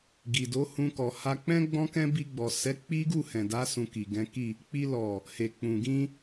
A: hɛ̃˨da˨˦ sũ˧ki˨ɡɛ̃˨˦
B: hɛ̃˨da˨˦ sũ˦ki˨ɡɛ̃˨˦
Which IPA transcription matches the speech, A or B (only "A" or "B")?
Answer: A